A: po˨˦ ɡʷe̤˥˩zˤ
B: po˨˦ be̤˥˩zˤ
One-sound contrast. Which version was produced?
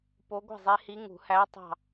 A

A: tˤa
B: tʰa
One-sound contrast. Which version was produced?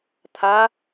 B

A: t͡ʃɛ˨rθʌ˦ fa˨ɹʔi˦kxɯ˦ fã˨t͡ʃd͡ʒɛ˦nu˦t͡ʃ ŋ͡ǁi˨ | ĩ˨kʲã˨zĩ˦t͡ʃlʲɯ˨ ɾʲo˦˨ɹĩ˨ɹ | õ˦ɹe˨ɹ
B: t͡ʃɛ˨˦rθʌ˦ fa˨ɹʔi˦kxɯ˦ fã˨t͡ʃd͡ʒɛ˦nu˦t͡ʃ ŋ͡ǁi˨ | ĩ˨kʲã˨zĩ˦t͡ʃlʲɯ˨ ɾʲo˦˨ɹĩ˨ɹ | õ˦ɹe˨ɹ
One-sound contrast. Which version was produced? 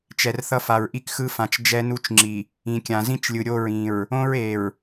A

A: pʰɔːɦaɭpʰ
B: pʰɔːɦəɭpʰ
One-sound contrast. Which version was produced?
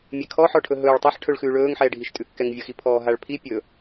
A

